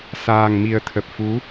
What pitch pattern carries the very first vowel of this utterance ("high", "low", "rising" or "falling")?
low